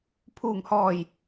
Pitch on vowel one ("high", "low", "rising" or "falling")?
low